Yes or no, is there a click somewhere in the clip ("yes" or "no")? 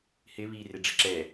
yes